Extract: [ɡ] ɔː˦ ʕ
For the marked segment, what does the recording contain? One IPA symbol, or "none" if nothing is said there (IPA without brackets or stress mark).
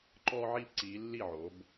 ǃ